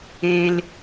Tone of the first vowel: high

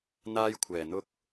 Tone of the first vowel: high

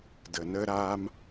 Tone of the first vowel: low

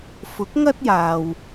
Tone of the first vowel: rising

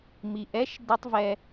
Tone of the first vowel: low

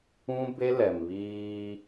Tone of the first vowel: high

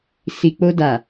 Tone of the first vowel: low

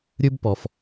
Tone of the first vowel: high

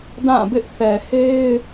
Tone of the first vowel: falling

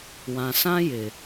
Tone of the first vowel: low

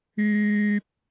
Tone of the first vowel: high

